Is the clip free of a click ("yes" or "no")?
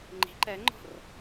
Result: no